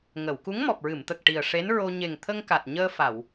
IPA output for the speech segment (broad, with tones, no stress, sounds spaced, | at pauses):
ŋ ə˨˩˨ w k u˧˥ ŋ m ɔ˨˩ p̚ ɹ ɨ˨˩˨ m t̪ ə˨˩ k̚ ʈ i˨˩ ə̯ ʂ e˧˥ n ɹ o˧ ɲ e˨˩ ŋ t̪ʰ ə˧ ŋ k a˨˩ t̚ ɲ əː˧ f a˨˩˨ w